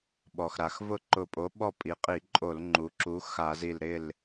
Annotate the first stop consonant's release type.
implosive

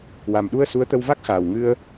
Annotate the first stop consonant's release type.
implosive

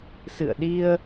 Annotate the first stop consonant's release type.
implosive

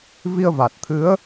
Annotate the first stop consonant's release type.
plain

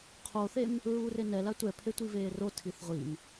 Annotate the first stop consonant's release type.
aspirated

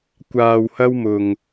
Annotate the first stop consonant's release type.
plain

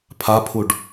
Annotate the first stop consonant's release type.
aspirated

